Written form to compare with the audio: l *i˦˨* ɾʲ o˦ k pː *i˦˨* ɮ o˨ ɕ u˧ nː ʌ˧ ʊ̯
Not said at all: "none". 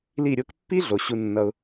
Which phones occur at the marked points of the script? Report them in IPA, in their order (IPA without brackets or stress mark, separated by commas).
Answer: i˦˨, i˦